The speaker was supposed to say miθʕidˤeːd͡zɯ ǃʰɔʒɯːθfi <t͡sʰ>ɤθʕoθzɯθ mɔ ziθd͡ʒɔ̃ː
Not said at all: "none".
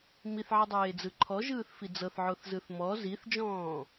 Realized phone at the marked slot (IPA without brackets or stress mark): d͡z